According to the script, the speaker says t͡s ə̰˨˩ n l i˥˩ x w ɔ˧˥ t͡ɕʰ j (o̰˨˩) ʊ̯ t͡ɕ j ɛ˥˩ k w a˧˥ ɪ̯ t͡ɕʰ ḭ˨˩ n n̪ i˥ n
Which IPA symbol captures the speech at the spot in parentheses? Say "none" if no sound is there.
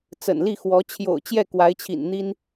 o̰˨˩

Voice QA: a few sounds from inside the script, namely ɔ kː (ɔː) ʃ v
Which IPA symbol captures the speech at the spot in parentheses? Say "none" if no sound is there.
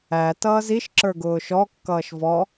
ʌː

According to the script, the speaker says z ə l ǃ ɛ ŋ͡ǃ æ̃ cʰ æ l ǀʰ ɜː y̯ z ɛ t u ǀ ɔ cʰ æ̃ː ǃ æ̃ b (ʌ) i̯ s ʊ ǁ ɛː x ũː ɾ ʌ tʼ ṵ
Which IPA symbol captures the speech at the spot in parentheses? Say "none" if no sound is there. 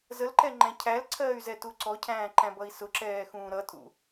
ʌ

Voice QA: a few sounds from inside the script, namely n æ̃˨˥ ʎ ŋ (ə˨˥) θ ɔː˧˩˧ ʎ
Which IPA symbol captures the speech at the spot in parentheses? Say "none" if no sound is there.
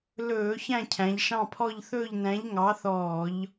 ɑ˨˥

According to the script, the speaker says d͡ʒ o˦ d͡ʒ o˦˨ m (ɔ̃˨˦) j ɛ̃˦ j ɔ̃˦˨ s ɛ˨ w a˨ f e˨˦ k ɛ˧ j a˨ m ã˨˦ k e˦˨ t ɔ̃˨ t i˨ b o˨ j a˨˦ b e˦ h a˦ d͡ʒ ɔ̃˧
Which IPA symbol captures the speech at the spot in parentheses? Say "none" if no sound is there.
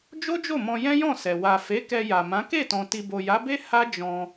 ɔ̃˧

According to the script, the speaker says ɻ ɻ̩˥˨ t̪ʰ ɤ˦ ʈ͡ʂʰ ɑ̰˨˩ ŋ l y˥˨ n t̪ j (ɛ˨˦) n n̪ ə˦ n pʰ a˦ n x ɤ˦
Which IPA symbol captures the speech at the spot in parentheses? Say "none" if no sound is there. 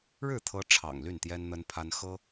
ɛ˦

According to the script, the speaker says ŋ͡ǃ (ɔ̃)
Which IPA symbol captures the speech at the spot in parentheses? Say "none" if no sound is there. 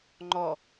ɔ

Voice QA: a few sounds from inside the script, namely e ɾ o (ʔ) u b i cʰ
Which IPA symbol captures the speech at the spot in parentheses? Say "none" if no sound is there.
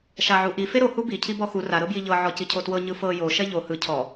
h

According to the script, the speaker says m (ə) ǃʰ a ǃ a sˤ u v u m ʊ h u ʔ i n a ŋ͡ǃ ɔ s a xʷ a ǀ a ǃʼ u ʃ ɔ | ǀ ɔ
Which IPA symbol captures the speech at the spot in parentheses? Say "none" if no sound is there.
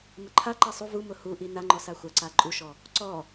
ə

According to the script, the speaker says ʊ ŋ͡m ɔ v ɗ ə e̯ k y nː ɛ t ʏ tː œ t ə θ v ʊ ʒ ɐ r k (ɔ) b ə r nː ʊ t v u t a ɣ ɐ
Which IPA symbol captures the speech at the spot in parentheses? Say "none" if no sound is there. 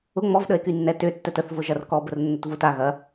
ɔ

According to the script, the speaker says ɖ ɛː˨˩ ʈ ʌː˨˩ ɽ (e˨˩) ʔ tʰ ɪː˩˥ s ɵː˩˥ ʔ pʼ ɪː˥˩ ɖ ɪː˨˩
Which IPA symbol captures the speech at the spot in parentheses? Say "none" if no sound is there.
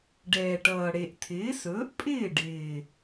e˨˩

